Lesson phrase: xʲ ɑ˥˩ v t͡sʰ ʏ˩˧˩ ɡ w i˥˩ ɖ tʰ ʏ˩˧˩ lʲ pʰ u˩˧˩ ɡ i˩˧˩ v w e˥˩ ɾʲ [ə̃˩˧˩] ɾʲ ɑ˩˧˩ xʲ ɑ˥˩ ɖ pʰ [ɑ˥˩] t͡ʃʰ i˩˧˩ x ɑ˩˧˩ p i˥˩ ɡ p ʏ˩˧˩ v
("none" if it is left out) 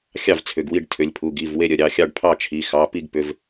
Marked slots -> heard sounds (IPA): ə˩˧˩, ɑ˥˩

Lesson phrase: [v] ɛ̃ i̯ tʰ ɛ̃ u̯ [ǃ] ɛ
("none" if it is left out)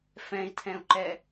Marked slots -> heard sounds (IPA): f, ǃ

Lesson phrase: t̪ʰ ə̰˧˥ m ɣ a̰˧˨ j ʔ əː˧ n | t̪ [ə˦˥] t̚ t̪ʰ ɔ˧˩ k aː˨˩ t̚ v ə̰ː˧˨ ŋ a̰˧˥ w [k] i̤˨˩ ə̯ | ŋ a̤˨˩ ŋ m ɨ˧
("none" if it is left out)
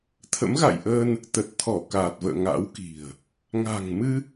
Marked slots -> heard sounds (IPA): ə˨˩, k

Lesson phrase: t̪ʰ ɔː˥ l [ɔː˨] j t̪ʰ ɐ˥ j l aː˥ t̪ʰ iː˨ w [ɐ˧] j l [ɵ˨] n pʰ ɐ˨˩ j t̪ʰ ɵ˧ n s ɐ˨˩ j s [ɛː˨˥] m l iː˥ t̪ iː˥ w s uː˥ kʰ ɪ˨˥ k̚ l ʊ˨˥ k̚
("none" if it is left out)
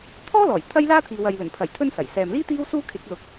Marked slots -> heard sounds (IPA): ɔː˨˩, ɐ˨, ɵ˨˩, ɛː˨

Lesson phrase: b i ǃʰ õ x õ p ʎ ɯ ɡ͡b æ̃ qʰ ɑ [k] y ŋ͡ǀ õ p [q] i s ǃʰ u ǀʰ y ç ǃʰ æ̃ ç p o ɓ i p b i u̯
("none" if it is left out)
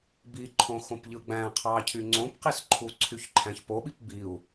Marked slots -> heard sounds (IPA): cʰ, q

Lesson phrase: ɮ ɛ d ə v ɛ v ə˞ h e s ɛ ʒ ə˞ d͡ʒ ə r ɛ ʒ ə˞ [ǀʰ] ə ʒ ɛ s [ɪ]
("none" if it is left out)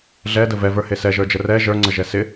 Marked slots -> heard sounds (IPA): ŋ͡ǀ, ɪ

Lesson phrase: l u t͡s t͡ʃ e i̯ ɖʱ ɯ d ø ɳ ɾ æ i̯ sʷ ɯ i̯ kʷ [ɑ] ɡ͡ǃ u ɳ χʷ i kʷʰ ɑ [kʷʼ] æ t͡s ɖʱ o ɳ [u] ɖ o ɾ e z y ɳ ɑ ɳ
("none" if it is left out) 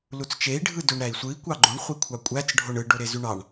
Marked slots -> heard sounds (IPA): ɑ, kʷʼ, ɯ

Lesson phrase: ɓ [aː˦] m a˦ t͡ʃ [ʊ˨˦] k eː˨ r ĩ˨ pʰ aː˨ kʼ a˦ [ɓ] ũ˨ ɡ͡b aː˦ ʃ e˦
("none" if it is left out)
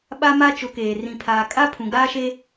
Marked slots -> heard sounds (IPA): a˦, ʊ˨˦, pʰ

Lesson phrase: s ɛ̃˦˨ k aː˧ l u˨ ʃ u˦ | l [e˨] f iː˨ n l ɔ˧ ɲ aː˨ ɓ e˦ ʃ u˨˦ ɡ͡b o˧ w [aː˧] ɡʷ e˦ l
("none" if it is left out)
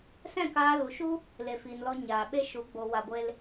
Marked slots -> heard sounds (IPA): e˨, a˧

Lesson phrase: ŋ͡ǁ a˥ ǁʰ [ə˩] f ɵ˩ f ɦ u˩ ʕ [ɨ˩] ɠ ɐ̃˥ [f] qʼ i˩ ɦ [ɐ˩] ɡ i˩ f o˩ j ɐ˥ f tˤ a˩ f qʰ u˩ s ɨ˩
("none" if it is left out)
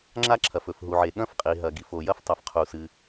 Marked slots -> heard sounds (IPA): ɐ˩, e˩, f, ɐ˩

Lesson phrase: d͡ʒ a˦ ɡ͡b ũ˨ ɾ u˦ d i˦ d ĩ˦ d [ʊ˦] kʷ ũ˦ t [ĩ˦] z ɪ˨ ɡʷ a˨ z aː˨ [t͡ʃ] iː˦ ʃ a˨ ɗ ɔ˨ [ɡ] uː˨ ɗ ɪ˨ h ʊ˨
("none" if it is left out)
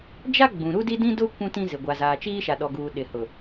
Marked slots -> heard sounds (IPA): ʊ˦, ĩ˦, t͡ʃ, ɡ

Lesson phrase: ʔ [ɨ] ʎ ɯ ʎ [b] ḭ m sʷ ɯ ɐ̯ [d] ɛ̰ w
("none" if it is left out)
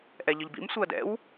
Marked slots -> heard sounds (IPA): ɛ, b, d

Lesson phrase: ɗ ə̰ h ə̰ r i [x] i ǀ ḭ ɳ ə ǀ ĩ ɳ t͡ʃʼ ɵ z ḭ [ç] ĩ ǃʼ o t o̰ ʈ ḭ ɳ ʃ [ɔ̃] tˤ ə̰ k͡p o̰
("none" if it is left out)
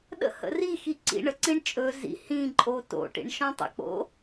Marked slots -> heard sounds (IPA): x, h, ɔ̃

